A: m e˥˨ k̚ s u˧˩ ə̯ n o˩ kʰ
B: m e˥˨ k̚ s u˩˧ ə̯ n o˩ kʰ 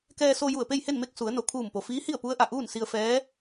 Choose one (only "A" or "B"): B